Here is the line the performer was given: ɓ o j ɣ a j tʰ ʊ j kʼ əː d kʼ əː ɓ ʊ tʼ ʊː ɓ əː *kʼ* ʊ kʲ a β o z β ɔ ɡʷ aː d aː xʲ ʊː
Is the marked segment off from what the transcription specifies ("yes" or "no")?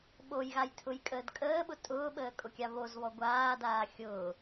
no